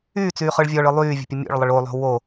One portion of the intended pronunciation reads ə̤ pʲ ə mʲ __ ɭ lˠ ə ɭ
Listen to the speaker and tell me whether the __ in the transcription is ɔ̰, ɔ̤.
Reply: ɔ̰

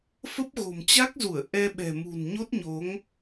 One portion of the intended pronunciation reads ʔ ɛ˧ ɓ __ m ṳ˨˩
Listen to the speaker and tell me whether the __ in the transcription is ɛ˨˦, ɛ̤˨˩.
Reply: ɛ̤˨˩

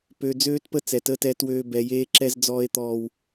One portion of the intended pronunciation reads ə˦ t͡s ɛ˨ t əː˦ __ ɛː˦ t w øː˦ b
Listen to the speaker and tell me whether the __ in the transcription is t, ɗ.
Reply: t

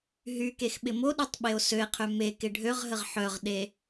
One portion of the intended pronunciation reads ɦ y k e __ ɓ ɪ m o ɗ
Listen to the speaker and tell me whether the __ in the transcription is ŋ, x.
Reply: x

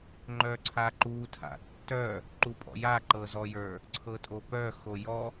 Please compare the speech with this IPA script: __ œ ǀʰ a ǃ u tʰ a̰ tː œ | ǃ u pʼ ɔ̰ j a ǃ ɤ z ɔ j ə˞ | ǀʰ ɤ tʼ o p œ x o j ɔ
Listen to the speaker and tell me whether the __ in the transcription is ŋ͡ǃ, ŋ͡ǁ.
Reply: ŋ͡ǃ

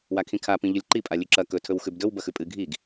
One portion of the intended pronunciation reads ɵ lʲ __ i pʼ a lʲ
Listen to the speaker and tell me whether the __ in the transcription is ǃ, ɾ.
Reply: ǃ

